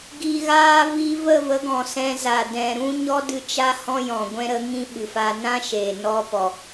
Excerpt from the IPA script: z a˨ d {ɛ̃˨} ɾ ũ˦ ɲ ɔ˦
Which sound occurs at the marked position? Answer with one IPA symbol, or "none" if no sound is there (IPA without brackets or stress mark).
ɛ̃˨